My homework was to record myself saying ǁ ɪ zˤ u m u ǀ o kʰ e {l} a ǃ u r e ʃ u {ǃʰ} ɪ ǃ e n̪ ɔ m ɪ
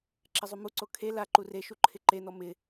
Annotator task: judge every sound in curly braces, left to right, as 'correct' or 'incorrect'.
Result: correct, correct

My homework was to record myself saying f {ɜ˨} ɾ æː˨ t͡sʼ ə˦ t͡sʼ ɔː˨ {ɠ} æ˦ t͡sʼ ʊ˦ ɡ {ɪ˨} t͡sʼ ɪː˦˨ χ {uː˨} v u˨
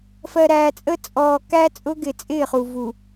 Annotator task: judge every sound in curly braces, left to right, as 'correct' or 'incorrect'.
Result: correct, incorrect: k, correct, incorrect: u˨

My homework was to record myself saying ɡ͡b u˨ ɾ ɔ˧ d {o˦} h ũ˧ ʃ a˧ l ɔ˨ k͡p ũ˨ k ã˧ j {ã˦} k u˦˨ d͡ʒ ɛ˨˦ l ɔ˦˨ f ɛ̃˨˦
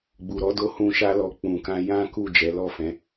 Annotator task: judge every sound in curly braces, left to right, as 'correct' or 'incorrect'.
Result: incorrect: o˧, correct

